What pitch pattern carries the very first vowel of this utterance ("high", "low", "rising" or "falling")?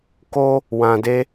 high